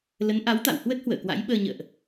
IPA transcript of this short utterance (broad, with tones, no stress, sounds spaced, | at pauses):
l ə˨˦ n ʔ a˨˦ w t̪ a̰˧˨ w h w ə˦˥ t̚ h w ə̰ː˧˨ k w a̰˧˥ j ɓ əː˧ ɲ ə̰ː˧˨ ʔ